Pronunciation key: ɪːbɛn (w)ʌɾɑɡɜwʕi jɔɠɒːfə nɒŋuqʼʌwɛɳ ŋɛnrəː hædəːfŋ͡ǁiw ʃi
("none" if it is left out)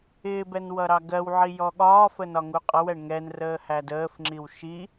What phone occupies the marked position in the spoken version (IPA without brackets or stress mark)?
w